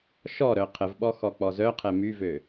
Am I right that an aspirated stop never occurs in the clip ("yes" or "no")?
no